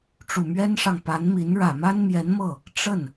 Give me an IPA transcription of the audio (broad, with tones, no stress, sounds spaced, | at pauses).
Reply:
ʈ͡ʂ u˨˩ m ɥ ɛ˥ n ʂ ɑ˨ ŋ p a˧˥ n m i˧˥ n ɻ ä˨˩ m a˥ n m j ɛ˧˥ n m ɤ˥˩ | ʈ͡ʂ ə˥˩ n